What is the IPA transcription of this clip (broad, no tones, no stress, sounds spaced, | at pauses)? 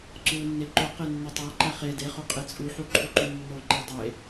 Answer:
ǀ u nː e ǃ o q e nː o tˤ æ ǃ æ χ e d e χ o qʼ e t͡sʼ u ħ u ǃʰ u ǃ u nː o ǃ æ dˤ e